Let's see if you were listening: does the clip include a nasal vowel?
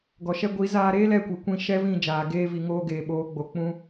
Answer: yes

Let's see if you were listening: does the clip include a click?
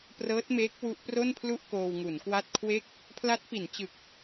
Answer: no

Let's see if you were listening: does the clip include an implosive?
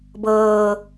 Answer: no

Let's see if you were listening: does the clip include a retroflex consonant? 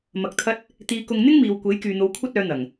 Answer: no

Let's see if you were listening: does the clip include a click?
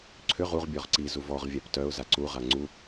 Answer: yes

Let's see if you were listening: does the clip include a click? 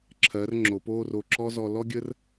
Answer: yes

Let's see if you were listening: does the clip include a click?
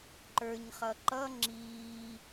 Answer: yes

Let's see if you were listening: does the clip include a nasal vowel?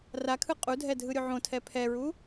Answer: yes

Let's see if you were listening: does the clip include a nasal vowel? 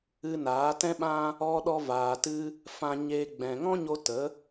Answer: yes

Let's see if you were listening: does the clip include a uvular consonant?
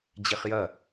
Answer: yes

